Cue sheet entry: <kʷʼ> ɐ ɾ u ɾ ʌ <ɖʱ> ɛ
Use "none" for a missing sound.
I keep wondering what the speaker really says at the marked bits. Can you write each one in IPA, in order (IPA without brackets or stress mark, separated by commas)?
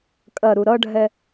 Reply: kʼ, ɖʱ